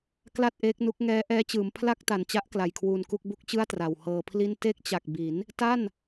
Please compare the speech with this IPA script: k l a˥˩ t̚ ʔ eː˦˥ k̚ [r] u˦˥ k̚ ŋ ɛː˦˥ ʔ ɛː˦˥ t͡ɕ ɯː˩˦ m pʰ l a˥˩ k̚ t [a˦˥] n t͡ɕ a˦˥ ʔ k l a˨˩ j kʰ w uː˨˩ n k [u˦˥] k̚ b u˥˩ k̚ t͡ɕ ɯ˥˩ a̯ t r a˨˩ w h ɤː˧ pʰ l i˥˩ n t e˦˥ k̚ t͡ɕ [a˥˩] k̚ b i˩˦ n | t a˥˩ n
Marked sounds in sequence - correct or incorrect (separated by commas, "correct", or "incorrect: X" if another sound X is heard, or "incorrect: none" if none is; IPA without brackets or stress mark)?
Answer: incorrect: n, incorrect: a˨˩, incorrect: u˥˩, incorrect: a˨˩